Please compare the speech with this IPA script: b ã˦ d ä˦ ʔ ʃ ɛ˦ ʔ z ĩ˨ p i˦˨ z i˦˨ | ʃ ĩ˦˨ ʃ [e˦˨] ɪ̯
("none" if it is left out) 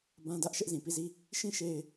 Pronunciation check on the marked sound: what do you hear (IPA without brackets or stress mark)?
e˦˨